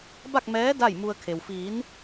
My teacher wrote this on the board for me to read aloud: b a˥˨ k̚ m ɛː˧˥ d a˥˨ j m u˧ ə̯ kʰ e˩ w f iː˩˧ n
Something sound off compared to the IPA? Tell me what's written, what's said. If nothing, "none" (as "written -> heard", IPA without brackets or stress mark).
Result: none